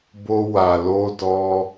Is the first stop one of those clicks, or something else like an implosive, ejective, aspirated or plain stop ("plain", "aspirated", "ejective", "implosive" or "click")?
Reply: plain